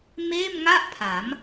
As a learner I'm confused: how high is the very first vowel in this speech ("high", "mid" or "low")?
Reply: mid